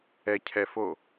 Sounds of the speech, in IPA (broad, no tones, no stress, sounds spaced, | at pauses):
ɛ cʰ ɛ f o